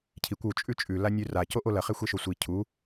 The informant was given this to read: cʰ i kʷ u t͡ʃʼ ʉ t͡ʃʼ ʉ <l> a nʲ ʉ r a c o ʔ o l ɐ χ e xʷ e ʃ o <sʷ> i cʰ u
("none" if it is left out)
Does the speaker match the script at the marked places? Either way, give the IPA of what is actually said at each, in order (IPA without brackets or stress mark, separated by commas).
l, sʷ